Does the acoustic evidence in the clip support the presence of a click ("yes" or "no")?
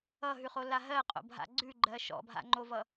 yes